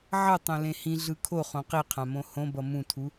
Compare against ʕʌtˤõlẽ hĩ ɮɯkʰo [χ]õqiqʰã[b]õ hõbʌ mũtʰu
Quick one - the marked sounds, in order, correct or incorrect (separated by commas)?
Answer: correct, incorrect